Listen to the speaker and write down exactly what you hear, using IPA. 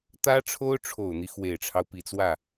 t̪ ä˥ ʈ͡ʂʰ o˥ ʊ̯ ʈ͡ʂʰ o˨˩ ʊ̯ n̪ i˦ x w e˨˩ ɪ̯ ʈ͡ʂʰ ɑ˦ ʊ̯ p i˨˩ t͡s w ä˥˩

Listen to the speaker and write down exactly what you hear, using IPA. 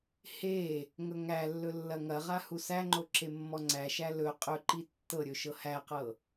h e | ŋ ɵ ŋ æ lː ɵ lː ɐ ŋ ɐ ʁ a h u s æ ŋ͡ǃ o ǁ e mː ɔ ŋ͡ǀ æ ʃ æ l ɵ qʼ ɵ ǃ i tː ɤ ɾʲ ɵ ʃ ɤ h æ q ɤ

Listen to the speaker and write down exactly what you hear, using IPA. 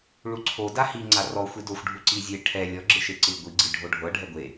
ɭ u ǀʰ o d a h i ŋ͡ǀ a r ɔ xʷ i d o xʷ ɖʱ u ǀ i zʲ e ʈʰ ɛ lʲ ɔ ɡ͡ǁ ɯ ʃ e ǀ ɯ ɡʷ i ɡ͡ǀ i ɖʱ o ɖʱ ɤ ɖʱ ɛ ɡʷ e

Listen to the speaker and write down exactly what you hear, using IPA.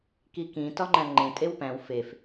k i k ĩ t ɒ ŋ͡ǃ æ̃ ŋ͡ǃ ẽ tʼ e w p æ̃ w f e f

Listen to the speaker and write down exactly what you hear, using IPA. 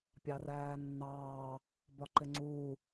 pʲ ɑ r æː nː ɑː | b ɒ ǃ ɪ ŋ͡ǀ uː

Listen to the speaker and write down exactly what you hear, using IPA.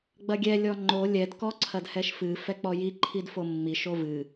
ɡ͡b ɐ ɡʲ ɛ lʲ ɔ ŋ͡ǃ o lʲ ɛ d k ɔ ǀʰ ɐ d h ɛ ʃ f ɨ f ɛ k͡p ɔ j i ǃʰ i d f o mː i ʃ o v ɨ

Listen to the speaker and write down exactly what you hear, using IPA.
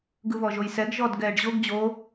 ɡ ɯ β ɔ ʒ o j s ɛ ɡ ʒ ɔ d ɡ ɛː ɖ ʑ o ɡ d͡ʑ o

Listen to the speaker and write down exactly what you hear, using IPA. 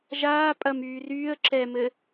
ʒ aː pʼ ɐ m yː r yː ə̯ ǁ ɛ m ɘ

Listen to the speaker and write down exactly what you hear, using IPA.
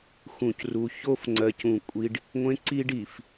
x ũ˨ c r u˨ ç o˦ f ŋ͡ǀ ɜ˨ c ũ˨ kʷʼ i˦ ɖ | ŋʷ ẽ˦ ǀ i˦ ɖ i˨ f

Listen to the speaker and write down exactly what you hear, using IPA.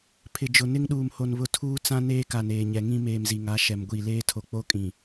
pʰ ɪ˨ d͡ʒ ʊ˨ n ɪ˦ ŋ ɗ uː˨ m h o˨ n β ʊ˦ tʰ uː˦ t͡s ã˦ n eː˦ k a˨ n eː˨ ɲ ɛ˨ ŋ ĩ˦ m eː˨ m z i˨ ŋ a˨˦ ʃ ɛ˨ m ɡʷ i˦˨ l eː˦ tʰ o˨ k͡p o˦ kʼ ĩ˨

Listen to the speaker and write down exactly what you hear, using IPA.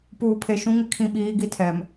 p uː˨ pʰ e˨ ʃ ũ˦ ŋ ɪ˨ kʰ ĩ˦˨ ɓ iː˦ ɡ i˦˨ tʰ ɛ˨ m

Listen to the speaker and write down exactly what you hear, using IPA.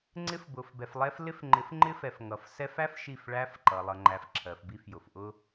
ŋ͡ǀ ɪ˦ f b ʊ˨ f b ɛ˨ f lˠ ɛ˦ f l ɪ˦ f ŋ͡ǃ ɪ˨˦ f ŋ͡ǃ ɪ˦ f ɛ˨ f ŋ ʌ˨ f s ɛ˦ f æ˦ f ʃ i˦˨ f ɭ æ˦ f ǃ ʌ˨ lˠ ʌ˨ ŋ͡ǃ æ˨ f ǁʰ ɜ˨ f b i˦ f j ʊ˨ f ʔ ʊ˦

